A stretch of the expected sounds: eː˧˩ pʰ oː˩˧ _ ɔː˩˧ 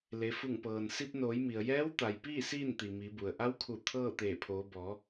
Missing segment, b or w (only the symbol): b